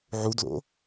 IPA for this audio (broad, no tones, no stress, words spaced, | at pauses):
ʕudlo̰